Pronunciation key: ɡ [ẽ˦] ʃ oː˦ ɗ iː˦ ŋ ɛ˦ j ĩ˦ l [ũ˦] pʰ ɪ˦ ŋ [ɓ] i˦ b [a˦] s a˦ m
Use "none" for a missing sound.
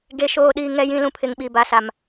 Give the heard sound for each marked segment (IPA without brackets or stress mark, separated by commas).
e˦, ũ˦, ɓ, a˦